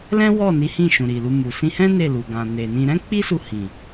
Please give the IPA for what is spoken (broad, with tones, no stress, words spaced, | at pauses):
lɛ̃˦wɔ˦˨ni˨˦ hĩ˦˨ʃũ˨ ɾi˨lu˧mu˨ sĩ˧hɛ̃˦ ne˦˨lu˨ɡã˨ ne˨nĩ˧ ɾɛ̃˦k͡pi˦su˧ hĩ˨